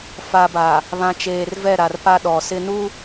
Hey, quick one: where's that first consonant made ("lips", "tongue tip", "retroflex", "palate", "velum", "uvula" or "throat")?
lips